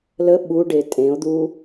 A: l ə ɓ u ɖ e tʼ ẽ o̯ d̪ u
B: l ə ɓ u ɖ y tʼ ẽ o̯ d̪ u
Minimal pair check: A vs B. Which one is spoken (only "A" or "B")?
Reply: A